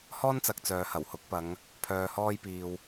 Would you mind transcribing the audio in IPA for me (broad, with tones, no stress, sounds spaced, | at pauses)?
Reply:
h ɔː˥ n t͡s ɐ˨ k̚ t͡s œː˨ h ɐ˨˩ w h ʊ˨˥ k̚ p ɐ˨˧ ŋ | pʰ œː˧ h ɔː˥ j p iː˧ w